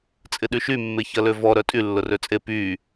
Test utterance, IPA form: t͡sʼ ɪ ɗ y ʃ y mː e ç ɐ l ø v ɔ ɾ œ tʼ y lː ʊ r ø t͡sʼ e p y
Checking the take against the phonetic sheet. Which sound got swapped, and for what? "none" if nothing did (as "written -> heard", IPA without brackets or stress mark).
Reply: none